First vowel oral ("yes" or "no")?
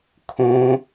no